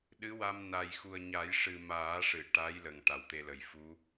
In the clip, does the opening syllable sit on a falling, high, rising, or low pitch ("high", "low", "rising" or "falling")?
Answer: rising